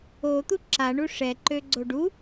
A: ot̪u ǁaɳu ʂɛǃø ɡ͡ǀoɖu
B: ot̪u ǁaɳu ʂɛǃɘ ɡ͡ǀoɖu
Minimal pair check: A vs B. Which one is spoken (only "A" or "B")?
A